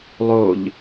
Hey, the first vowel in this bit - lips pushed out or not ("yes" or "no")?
yes